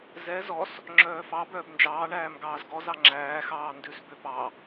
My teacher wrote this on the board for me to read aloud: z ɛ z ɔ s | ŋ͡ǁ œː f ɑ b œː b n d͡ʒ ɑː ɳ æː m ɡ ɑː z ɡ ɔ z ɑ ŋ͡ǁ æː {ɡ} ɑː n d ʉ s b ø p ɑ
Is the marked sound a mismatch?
yes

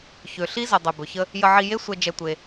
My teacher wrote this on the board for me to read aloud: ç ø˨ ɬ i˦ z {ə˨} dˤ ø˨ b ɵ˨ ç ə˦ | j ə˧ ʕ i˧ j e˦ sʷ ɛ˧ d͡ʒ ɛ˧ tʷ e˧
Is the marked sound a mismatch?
no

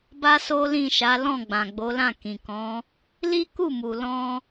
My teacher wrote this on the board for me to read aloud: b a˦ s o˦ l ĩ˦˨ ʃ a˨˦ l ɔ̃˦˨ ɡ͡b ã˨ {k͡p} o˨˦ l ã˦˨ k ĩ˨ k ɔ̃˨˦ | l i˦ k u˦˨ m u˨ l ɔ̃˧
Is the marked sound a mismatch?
yes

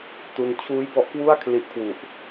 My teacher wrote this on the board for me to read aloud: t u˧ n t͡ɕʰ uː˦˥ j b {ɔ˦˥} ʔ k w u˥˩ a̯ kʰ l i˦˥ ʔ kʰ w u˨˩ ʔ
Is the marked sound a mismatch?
no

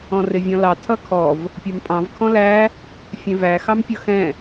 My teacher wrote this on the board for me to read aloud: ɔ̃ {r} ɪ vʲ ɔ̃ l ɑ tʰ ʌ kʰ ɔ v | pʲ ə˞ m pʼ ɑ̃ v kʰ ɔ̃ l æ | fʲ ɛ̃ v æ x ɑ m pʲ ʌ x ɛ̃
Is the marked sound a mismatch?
no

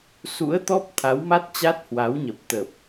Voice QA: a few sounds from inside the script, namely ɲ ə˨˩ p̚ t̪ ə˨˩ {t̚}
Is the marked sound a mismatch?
yes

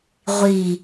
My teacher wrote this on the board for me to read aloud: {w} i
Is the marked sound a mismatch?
yes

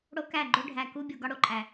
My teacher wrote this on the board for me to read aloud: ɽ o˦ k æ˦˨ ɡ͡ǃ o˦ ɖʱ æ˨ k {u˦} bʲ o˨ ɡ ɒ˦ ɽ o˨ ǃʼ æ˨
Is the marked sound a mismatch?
no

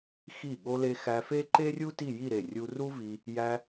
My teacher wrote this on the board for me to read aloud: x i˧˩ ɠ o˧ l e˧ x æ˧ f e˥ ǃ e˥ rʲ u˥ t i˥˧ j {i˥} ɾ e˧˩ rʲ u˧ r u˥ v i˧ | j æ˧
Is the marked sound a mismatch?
yes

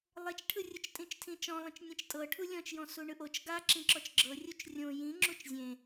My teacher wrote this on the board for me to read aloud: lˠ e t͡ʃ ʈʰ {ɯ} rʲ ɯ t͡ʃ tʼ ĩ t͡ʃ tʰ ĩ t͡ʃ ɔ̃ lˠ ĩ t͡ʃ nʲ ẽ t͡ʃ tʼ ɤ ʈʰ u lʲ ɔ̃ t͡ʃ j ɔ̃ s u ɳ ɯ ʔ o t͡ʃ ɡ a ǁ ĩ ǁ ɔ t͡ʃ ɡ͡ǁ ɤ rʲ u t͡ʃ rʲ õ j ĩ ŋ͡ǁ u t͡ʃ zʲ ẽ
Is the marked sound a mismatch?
no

